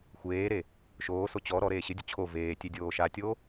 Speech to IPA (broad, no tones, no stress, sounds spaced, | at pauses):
xʷ eː ɾ e | ʃ oː s o t͡ɕ ɔ ɾ ɔ ɾ eː ɕ ɪ dʲ ʊ t͡ɕʰ o v eː tʲ e dʲ oː ʃ a tʲ oː